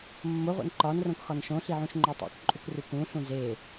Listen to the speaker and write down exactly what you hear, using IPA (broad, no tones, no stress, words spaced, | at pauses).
mːo ʁʷḛnǃɒnrõk xɒnʃõɬi ʕũʃŋ͡ǃotˤḛkǃʼuk rukũɬũ ze